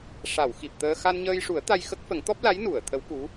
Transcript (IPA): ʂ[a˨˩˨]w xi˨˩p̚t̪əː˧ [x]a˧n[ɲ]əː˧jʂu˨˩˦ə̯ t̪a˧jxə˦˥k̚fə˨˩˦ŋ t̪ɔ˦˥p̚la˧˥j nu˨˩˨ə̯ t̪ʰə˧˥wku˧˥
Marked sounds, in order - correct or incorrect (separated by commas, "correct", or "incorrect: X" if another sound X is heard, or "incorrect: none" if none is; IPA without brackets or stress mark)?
correct, correct, correct